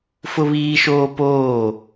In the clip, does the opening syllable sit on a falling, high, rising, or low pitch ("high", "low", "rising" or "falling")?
high